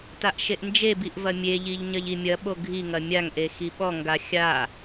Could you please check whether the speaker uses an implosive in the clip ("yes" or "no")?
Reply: yes